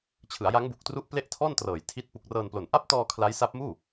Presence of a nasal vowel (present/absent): absent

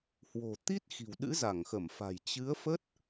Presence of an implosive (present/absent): present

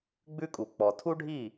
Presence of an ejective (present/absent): present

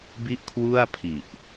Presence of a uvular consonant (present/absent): absent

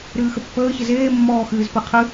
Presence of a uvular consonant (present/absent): present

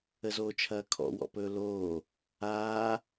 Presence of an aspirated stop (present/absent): present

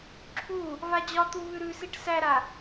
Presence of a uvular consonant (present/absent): absent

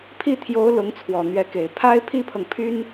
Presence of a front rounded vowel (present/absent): present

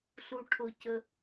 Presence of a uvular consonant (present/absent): absent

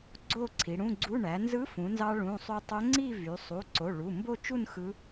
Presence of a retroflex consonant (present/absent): present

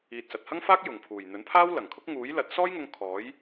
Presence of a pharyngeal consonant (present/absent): absent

